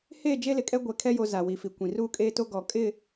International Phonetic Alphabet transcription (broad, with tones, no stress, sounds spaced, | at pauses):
h eː˦˨ d͡ʒ e˦ l ɪ˨ kʼ ɛ˦ ɡʷ ɛ˨ kʰ ɛ˦ j o˨˦ z a˨ w i˨ f i˨ kʷ ĩ˨ r uː˦ kʼ eː˦ t o˦ ɡ ɔ˨ kʼ ɪ˦˨